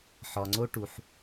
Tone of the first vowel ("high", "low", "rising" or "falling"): low